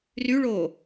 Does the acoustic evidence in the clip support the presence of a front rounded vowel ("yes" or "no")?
yes